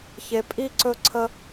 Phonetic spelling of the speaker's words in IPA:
ç e˧ pʼ i˦ ǀ ɵ˦ ǀʰ ə˦

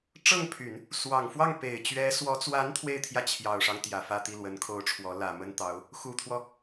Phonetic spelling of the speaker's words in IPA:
ʈ͡ʂ ɤ˥˩ ŋ pʰ y˨˩˦ n | s w ɑ˨˩ ŋ f w ɑ˥˩ ŋ p e˨˩ ɪ̯ t͡ɕ ɥ ɛ˧˥ s w ɔ˧˥ t͡s w a˧˥ n t̪ʰ w e˥˧ ɪ̯ t̪ʰ j ä˥˩ t͡ɕʰ j ɑ˨˩ ʊ̯ ʂ ɑ˦ ŋ t̪ j ä˨˩ f ä˥˧ t̪ i˥˩ l w ə˧˥ n kʰ o˥ ʊ̯ ʈ͡ʂʰ w ɔ˧˥ l ä˨˩ m ə˥ n t̪ ɑ˧˥ ʊ̯ | x u˨˩ t̪ʰ w ɔ˦

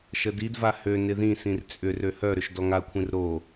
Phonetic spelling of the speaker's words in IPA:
ʃ ə d i d v a h ø n ɪ ð ĩ s ĩ r t͡sʼ ʏ r ø h œ ɾ ʏ ʃ d ɔ ŋ a kʷʰ ĩ r ɾ o

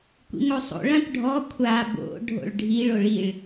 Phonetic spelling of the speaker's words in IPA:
kʷ ḭ ŋ o sˤ o̰ ɭ ã kʷ ɖʱ ɔ kʷʰ a b o̰ ɖʱ o̰ ɭ ɖʱ i ɭ o ɭ i ɭ

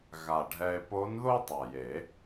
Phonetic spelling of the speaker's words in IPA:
ɣ a˨˩ ɖʱ ɛ˧ e̯ p o˧˥ n ð o˥ tˤ a˨˩ j e˨˩˦

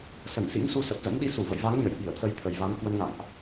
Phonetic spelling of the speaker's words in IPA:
s ə˧˩ n s ḭ˧˥ ŋ s u˧ s ə˨˩ p̚ z ə̰˧˥ n ɗ i˨˦ s u˧˩ v ə̰˧˨ j v a˨˦ ŋ ɲ ə˧˩ j ɓ i˧˩ ə̯ t̪ʰ ə˨˦ j t̪ʰ ə˨˩ j v a˨˦ n k w ə˧ n ŋ a̰˧˨ ŋ ʔ

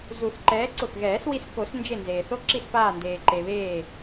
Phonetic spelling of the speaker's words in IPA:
z u˨˩˦ θ ǃ ɛː˨˥ ǀ ʊ˧˩ x ɣ ɛː˨˩˦ s w i˧ s k o˨˩˦ s n d͡ʒ e˧˩ n z eː˩ θ o˧ ǁ i˧˩ s p aː˧˩ n d eː˩ ǃ e˩ β eː˧˩

